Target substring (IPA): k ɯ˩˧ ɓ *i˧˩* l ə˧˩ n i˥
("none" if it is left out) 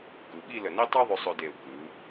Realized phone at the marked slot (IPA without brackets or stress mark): i˥˧